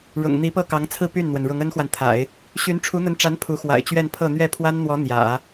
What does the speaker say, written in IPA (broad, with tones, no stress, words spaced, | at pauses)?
ɻʊ̰˨˩ŋ n̪i˧˥pɤ˥˩kɑ˧˥ŋt͡sʰɹ̩˥˧ py˥˩nn̪wə˩n ɻʊ˧˥ŋə˥nxwa˨nt̪ʰa̰˨˩˦ɪ̯ | ɕy˧˥nʈ͡ʂʰu˧˥n̪ə˧˥nʈ͡ʂa˧˥n pʰu˧˥xwa̰˨˩ɪ̯t͡ɕɥɛ˥˧npʰɤ˥˧ n̪ɥɛ˥˩pʰwa˥nn̪wɔ˧˥ n̪jä̰˨˩˦